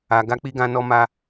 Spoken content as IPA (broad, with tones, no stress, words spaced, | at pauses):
a˨ ɡa˧k͡pi˧ɡã˧nɔ˧ ma˧